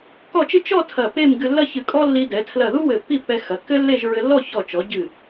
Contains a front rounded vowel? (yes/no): no